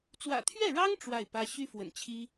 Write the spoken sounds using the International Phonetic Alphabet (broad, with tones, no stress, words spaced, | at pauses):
t͡swä̰˨˩t̪ʰɥɛ˥˩ɻɑ˥ŋ ʈ͡ʂwa˥˩ɪ̯pä˥ ɕy˥fwə̰˨˩nt͡ɕʰi˥